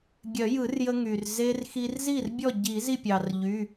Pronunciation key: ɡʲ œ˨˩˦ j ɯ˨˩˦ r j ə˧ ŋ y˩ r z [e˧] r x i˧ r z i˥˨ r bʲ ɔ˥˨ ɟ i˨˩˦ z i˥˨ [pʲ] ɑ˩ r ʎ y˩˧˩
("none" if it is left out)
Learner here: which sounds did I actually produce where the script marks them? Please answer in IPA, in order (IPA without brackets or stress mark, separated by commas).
e˧, pʲ